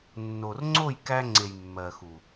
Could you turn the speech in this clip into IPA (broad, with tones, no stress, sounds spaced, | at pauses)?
nː o˨ r ŋ͡ǀ o˦˨ j k æ˧ ŋ͡ǀ e˨ j mː ɜ˨ x u˨